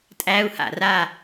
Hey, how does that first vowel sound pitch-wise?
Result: high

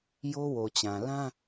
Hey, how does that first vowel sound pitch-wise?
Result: high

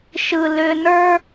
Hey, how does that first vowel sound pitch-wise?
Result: low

